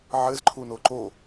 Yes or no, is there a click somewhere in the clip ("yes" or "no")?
yes